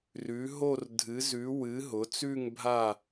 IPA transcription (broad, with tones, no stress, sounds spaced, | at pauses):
r ʉ˨˥ ɦ o˥˧ r dʱ ɨ˨˥ z ʉ˨˥ w ɨ˨˥ ɦ ʊ˨˥ t͡s ʉ˥˧ ŋ bʱ a˥˧